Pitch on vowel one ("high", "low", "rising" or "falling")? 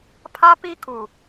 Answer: high